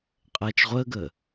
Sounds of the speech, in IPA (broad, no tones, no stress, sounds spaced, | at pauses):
qʼ ɛː t͡ʃ ʁʷ əː ɡ ə